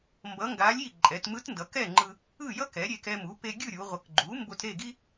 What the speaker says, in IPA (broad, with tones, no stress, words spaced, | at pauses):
mbʌ˧˥ŋɡa˧˥lʲi˥˨ ǃʼɛ˩˧tmɯ˧˥tndʌ˩˧ kɛ˥˨ŋ͡ǃɯ˧ | ɯ˥˨jʌ˥ kɛ˩˥ɾʲe˧kɛ˧mu˩˥ pe˧ɡʲɯ˥˨ɾʲu˩˧ ʁʷʌ˩˥kɡ͡ǃu˩˥mbo˧t ɾe˥˨ ɡi˥